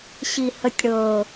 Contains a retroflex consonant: yes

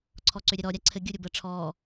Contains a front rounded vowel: yes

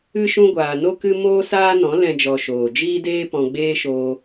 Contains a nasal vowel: yes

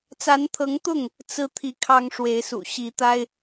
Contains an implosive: no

